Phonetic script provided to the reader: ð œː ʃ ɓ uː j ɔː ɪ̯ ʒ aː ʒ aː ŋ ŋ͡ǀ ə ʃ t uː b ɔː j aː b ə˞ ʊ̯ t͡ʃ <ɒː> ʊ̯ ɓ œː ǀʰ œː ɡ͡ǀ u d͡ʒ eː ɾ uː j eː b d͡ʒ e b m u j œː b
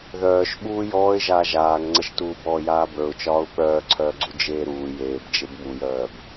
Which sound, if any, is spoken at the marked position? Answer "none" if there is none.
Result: ɒː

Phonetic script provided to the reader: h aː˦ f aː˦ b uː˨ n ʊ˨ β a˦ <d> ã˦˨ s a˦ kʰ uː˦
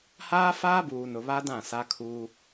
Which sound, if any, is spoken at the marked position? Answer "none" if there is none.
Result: d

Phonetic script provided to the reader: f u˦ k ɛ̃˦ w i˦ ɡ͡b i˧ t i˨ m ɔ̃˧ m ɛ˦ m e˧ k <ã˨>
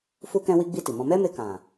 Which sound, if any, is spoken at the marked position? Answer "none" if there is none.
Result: ã˨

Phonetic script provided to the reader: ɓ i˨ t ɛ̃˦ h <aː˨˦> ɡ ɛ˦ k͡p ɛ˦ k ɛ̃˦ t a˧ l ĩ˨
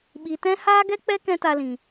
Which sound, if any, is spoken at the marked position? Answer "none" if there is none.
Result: aː˦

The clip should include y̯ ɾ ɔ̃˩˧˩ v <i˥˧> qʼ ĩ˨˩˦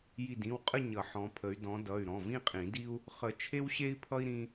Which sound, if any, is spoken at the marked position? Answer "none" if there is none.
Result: ĩ˥˧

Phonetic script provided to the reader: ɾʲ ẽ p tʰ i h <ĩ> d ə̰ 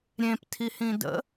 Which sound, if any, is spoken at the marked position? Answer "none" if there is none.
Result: ĩ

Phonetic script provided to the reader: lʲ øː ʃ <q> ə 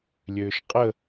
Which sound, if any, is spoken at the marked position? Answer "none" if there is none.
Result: qʼ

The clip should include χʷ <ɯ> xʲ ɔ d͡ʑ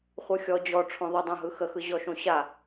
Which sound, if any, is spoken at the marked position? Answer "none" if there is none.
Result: ɯ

